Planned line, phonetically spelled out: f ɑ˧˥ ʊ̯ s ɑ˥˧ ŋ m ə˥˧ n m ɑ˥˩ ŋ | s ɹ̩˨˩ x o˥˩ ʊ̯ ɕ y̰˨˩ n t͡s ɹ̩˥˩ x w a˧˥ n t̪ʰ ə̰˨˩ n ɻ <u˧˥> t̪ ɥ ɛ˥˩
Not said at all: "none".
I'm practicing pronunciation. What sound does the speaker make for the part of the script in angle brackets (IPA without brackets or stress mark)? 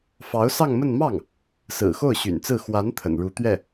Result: u˧˥